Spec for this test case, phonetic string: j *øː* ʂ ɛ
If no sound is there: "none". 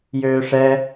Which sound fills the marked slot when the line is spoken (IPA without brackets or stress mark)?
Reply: øː